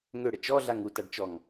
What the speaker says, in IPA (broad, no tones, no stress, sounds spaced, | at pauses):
ŋ ø ɽ ə t͡ʃ ɔ ɮ a ŋ u t a ɖ t͡ʃ ɔ ŋ